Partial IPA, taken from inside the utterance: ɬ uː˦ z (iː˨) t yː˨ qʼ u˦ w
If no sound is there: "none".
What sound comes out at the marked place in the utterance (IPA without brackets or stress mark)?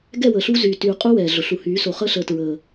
yː˨